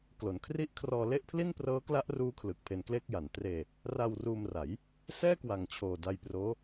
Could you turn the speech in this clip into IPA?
klo˩˦nkʰri˥˩ʔ kʰrɔː˧le˥˩ʔpʰli˥˩n prɤː˦˥kla˦˥ʔruː˦˥ kʰlɯ˨˩k̚pʰe˧nkle˥˩k̚ja˩˦n treː˧ | ra˧wruː˧mra˩˦j | sɛː˥˩kwa˨˩ŋt͡ɕʰoː˨˩ da˧jproː˦˥

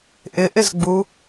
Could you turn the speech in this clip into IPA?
ʔɪʔɪzɡ͡bu

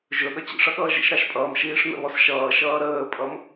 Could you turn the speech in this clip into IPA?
ʒɵ ɠʌt͡ɕḭʂʌɠʌː ʒḭʃɾɑʃpʼʌːm ʃiːʂn̪ə̰βɔs ʃʌːʃʌː ɾəːpʼʌm

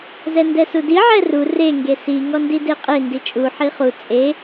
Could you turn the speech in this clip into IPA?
zɛndɛsudi ʕɛru re ŋɡesi ŋɔndideqʼe ndit͡ʃʼu ħiχu t͡sʼe

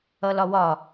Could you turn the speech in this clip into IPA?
ʌlɒwɒ

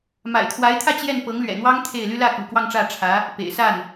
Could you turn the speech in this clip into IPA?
ma̰˨˩ɪ̯t̪ʰwa˧˥ɪ̯t̪ʰä˥˧ t͡ɕjɛ˥˩n pɤ˧˥ŋlɥɛ̰˨˩n̪wɑ˥ŋ t̪ʰe˥˩ɪ̯ly˥ lä˥˩kṵ˨˩ kwɑ˥˧ŋʈ͡ʂä˥˩ ʈ͡ʂʰä˧˥ | pḛ˨˩ɪ̯sa˥˩n

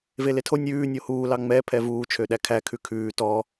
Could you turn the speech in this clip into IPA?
veletʰo nʲʉː nʲohuː lɑŋ͡mɛ pʰɛvuː t͡ʃʰøɗækʰæ kʰʉkʰʉː tɔ

